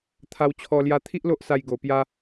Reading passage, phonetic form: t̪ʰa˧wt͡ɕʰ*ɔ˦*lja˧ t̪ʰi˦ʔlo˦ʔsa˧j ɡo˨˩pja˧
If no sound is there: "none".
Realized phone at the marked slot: ɔ˧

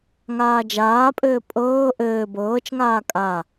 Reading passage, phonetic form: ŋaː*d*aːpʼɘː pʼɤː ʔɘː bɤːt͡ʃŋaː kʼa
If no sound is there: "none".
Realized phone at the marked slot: d͡ʒ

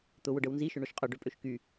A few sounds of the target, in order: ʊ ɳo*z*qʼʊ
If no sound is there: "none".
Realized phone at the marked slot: ʃ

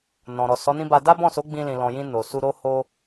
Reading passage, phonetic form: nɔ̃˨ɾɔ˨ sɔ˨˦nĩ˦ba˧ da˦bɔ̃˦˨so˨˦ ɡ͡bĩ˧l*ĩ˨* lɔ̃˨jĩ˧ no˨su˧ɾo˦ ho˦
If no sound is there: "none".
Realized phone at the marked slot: ĩ˨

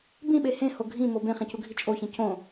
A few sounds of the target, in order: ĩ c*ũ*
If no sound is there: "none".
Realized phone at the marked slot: õ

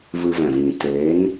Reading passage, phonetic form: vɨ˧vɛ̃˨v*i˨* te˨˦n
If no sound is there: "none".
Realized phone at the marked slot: ĩ˨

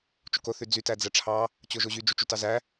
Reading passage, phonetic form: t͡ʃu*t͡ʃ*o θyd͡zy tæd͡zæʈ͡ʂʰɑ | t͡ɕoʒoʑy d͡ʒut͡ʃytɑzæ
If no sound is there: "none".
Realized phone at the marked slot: k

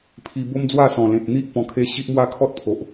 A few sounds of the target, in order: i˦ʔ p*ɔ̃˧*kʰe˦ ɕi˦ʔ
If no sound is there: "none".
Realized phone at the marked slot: ɔ̃˧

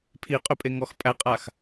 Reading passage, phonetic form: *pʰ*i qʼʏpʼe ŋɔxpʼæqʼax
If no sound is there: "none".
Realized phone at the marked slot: pʰ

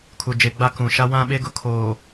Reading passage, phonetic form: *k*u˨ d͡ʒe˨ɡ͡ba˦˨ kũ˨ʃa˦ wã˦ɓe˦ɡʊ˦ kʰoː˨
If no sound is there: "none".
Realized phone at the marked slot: kʰ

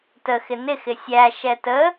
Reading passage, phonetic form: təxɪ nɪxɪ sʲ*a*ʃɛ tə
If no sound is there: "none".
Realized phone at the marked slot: æ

